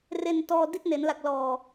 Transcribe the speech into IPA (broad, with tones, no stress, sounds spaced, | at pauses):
r e˧ n t ɔː˧ d i˥˩ t̚ n e˩˦ n l a˨˩ k̚ l ɔː˨˩